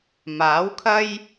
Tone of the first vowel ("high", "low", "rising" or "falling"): rising